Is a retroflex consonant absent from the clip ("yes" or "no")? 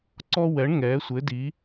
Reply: no